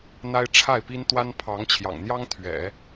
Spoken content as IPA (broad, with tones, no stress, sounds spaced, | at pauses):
n̪ a˥ ɪ̯ ʈ͡ʂʰ a˥˩ ɪ̯ p i˥ n t̪ w a˥ n pʰ ɑ˧˥ ŋ t͡ɕʰ j ɑ̰˨˩ ŋ n̪ j ɑ˥ ŋ t̪ʰ ɥ ɛ̰˨˩˦